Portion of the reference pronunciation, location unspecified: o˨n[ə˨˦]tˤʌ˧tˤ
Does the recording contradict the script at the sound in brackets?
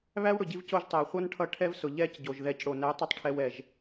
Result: yes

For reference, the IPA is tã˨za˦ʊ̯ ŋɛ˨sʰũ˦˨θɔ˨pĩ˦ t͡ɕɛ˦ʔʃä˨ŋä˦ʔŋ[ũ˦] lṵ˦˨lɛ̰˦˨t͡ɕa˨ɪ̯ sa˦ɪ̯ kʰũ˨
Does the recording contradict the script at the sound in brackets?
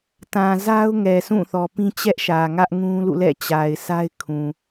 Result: no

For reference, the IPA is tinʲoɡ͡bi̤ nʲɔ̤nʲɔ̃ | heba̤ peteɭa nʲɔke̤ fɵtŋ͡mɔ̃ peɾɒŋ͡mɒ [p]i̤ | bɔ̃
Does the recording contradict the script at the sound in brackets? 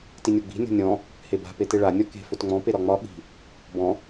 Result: yes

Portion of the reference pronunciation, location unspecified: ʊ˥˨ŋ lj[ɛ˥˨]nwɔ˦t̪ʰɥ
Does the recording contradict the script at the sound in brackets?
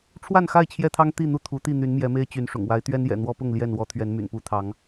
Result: no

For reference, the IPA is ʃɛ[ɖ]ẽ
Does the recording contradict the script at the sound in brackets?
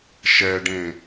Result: no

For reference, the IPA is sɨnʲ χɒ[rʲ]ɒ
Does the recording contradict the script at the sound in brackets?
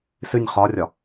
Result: no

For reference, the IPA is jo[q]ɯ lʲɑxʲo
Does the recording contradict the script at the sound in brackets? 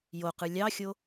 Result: no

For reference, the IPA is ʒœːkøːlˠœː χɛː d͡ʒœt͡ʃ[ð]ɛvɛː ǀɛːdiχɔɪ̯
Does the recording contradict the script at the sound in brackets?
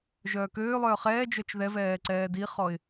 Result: no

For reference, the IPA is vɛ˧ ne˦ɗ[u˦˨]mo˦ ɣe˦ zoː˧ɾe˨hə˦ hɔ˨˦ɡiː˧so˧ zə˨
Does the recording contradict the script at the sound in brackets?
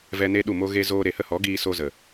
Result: no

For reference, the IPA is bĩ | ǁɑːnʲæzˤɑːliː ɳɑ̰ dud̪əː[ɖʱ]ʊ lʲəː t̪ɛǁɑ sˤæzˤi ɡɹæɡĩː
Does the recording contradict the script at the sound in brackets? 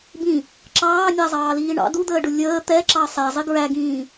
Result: yes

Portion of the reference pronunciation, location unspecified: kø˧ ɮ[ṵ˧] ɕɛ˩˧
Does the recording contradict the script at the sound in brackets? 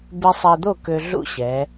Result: no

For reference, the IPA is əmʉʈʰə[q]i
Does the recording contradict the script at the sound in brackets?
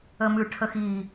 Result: yes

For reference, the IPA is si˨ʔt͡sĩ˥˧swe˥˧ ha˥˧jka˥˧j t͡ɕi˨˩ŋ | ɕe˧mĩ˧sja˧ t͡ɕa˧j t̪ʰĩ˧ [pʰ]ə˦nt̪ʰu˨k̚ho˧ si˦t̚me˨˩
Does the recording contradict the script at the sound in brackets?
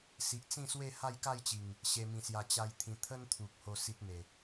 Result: yes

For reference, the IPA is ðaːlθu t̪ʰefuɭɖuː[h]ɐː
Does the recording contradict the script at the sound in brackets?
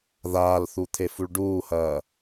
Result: no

